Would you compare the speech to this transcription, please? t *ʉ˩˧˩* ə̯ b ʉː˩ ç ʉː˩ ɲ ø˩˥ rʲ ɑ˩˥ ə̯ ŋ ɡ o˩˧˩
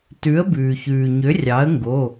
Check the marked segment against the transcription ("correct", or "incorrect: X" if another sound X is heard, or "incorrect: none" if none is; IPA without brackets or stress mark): incorrect: ʉ˩˥